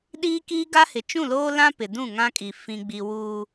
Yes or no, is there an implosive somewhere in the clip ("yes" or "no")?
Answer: yes